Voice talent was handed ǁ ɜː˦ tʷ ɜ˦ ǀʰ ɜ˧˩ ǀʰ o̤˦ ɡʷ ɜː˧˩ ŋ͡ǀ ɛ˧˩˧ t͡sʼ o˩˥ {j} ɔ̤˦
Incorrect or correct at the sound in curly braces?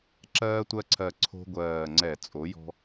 correct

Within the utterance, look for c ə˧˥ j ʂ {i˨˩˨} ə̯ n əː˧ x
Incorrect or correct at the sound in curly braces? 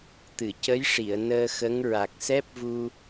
correct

